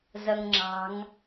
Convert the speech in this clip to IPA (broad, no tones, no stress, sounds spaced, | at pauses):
z ʌ ŋ ŋ͡ǁ ɑ̤ ŋ